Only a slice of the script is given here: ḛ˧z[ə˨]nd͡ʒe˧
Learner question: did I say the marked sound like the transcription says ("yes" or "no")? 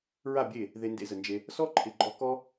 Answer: yes